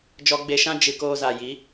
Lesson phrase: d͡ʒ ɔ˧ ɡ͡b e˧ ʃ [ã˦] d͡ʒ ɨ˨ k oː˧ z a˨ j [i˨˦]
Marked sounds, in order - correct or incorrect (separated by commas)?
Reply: correct, correct